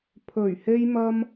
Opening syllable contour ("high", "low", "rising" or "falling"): low